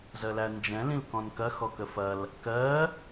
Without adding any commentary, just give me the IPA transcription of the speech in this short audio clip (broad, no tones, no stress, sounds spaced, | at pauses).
z ɜ l æ n d͡ʒ ɛ̃ l ĩ l k ɔ̃ n k ɐ x ɔ k ə f ɐ l | k ɜ